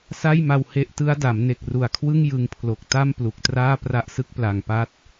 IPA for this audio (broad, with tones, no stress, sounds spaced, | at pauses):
s a˥˩ j m a˧ w h e˦˥ ʔ t ɯ˦˥ a̯ d a˩˦ m n e˨˩ k̚ r u˨˩ a̯ kʰ w ɯ˥˩ ŋ j ɯ˧ ŋ pʰ l o˨˩ k̚ t a˥˩ m p l u˨˩ k̚ t r aː˥˩ p r a˦˥ ʔ s ɯ˦˥ k̚ p l a˨˩ ŋ p a˦˥ t̚